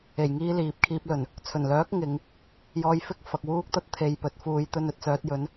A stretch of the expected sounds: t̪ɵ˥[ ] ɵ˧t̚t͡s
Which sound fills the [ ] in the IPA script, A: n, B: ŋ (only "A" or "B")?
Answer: A